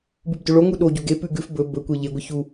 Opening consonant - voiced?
yes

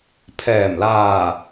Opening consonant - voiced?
no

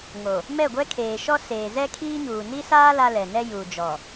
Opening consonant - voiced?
yes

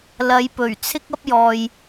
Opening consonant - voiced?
yes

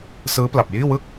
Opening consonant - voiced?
no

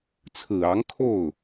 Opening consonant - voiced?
no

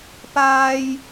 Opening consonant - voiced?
no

